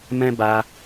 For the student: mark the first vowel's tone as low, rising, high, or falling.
high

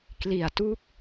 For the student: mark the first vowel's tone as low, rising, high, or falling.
low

